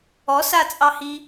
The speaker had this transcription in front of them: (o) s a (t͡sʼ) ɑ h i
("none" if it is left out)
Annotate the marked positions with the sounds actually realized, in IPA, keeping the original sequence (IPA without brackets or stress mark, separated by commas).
ɔ, t͡sʼ